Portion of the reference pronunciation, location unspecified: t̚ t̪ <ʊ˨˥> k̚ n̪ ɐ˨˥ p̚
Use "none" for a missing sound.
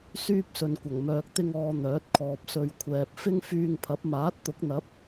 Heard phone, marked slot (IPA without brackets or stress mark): ʊ˨˥